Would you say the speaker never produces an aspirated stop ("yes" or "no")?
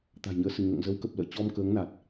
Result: yes